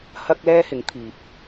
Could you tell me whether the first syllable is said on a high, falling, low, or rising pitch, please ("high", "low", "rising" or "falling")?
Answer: high